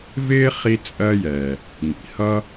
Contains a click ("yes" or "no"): no